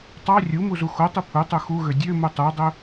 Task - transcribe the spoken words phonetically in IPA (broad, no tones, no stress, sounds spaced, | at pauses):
tˤ ɑ rʲ u m u z u x o tˤ i pʰ u tˤ u x u ɣ ø dʲ ø m u tˤ u dˤ ø